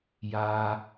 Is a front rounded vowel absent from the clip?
yes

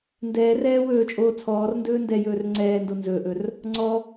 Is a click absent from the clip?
no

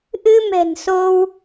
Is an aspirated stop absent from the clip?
yes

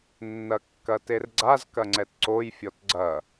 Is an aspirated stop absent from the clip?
yes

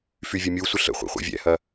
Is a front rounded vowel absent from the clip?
no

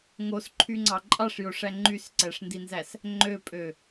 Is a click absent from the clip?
no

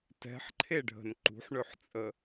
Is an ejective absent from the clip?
no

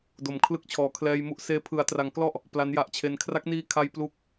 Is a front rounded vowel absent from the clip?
yes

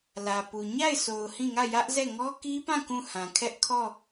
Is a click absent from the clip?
yes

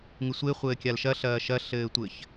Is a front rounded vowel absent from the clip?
yes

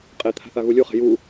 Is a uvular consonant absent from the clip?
no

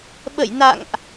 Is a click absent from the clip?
yes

